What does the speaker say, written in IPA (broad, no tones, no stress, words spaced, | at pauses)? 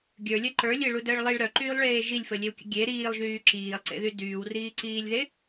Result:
ɡʲə˞lʲœ ǃə˞lʲeɭudəːɭ lˠiɭ ɾœǃyːlˠɭeː ʒilʲfəlʲewkʲə̰ ɡʲe ɾiːlˠʒyː ǁiːlˠǀḛðy dyːwriːǀiːlʲðe